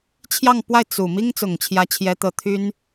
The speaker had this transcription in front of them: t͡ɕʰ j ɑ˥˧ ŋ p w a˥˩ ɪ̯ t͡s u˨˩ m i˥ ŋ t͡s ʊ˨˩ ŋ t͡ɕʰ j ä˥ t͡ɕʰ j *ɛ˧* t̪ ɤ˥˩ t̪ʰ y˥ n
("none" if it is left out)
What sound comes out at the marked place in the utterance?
ɛ˥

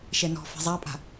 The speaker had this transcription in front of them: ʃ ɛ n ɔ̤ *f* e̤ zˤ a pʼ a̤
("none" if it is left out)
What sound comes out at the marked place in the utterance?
f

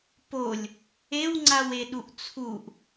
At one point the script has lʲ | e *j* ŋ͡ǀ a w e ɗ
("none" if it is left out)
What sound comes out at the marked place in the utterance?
w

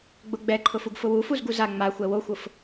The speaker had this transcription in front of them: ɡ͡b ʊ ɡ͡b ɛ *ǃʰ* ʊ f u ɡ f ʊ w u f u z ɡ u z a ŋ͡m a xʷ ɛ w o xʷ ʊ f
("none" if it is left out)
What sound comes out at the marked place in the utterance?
ǃʰ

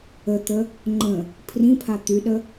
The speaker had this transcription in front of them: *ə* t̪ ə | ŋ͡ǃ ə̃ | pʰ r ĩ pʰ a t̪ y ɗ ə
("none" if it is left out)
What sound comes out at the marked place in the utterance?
ə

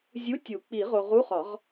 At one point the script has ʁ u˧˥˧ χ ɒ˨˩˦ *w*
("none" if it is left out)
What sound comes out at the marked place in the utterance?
ʁ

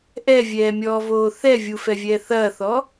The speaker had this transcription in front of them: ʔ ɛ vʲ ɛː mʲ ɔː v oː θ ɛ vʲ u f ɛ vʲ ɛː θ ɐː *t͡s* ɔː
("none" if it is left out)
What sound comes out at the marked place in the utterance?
θ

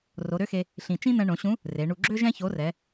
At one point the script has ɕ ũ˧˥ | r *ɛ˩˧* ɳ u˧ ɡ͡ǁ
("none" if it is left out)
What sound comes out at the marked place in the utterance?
e˩˧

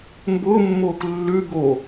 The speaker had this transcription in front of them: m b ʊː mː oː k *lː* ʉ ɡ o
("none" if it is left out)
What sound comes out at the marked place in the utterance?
lː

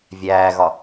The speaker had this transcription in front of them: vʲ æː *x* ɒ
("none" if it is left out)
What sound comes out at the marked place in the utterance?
ɣ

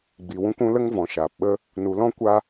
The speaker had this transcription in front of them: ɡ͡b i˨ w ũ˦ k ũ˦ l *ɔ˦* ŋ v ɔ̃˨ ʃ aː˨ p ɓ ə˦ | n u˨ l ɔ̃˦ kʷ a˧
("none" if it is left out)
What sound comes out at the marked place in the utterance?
ə˦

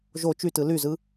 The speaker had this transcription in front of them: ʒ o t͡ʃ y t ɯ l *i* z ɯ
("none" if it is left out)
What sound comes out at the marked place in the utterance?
y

